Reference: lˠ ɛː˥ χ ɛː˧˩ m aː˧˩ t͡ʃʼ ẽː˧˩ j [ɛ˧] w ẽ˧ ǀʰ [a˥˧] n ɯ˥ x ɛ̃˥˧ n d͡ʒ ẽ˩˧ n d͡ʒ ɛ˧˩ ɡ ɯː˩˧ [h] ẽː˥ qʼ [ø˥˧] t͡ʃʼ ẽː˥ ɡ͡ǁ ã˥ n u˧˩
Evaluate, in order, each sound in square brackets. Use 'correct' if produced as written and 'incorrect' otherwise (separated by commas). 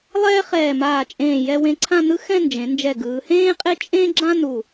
correct, incorrect, correct, incorrect